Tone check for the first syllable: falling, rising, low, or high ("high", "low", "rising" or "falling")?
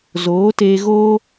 rising